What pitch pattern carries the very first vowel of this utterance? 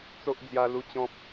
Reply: high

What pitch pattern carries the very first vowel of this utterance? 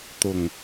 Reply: low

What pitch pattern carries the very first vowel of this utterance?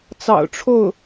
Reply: low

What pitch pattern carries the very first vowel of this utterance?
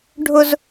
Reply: high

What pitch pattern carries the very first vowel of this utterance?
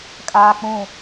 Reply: high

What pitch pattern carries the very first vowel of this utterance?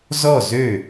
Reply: falling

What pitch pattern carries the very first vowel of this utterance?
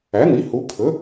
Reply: rising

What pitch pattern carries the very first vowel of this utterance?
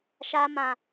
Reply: high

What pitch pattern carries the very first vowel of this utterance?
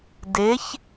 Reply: rising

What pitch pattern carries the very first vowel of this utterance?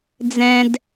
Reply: high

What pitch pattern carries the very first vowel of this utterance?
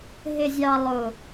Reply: low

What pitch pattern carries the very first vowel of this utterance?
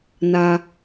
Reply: high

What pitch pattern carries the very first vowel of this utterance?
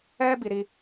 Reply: high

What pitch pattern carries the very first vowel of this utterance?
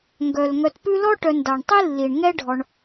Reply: low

